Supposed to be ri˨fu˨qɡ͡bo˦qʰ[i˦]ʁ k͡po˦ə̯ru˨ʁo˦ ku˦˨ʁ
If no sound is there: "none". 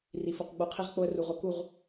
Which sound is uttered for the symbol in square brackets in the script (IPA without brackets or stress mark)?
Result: i˦